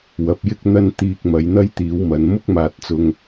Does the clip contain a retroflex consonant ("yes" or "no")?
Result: no